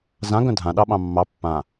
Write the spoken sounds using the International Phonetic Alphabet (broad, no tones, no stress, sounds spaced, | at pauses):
z ã ɡ œ̃ dʱ ã ɗ ɑ ɓ ɑ̃ mː ɑ pː ã